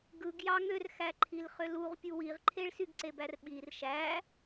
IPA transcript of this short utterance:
ɡɯɡ jɑŋørxæǃʰil χøluʁpʲu wiʁǃʰeɭ syɡǀebærɓir ʃæ

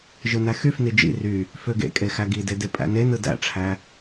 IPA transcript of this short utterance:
ʒɯnæxyfni d͡ʒḭ ry | føɡḛkʼe xæɡide depʼæ̰nenɯ dæ̰ʈ͡ʂʰæ

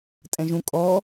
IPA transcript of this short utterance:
tʼɛ̃ʒũ kʼɔ

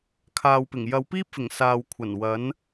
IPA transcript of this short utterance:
kʰaː˨wpɪ˨˩ŋ jɐ˨˧wpiː˥p̚fɪ˨˩ŋ saː˨wkʷʰɐ˨˩n wɐ˨˥n

